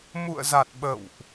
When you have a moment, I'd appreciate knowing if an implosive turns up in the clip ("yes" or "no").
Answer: yes